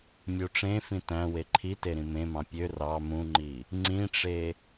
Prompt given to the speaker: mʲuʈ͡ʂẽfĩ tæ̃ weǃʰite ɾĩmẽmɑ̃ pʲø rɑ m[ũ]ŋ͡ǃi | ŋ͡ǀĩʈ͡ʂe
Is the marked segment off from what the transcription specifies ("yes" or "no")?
no